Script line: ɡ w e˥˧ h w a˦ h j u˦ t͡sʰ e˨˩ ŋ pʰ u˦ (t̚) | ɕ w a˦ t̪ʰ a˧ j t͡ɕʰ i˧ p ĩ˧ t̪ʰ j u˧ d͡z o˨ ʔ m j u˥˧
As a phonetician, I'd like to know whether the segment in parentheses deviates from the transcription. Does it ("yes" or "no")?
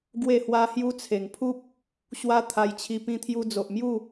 yes